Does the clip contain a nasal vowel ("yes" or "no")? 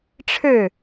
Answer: no